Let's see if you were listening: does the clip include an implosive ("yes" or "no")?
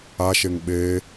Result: yes